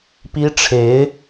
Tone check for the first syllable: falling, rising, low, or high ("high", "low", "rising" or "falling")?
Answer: high